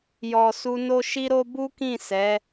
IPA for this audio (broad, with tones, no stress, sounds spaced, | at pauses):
j ɔ˨ s u˧ n o˦ ʃ i˦ ɾ o˦ b u˦ k ĩ˦˨ s ɛ˨˦